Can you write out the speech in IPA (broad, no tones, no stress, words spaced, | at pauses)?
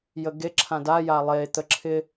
jəɡeǁʰã daja lˠet̪ə ǁʰɪ